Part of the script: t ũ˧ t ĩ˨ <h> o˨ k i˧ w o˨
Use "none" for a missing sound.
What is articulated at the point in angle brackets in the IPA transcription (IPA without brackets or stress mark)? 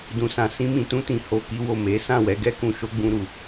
h